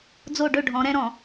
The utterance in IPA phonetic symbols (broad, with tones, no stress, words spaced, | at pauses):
d͡zo˦˨ɖɵ˦˨ɖʱɔ̃˨˦ ɾɛ̃˦ɾɔ̃˨